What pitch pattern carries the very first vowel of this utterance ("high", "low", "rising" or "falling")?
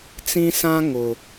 high